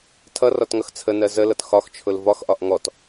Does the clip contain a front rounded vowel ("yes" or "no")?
no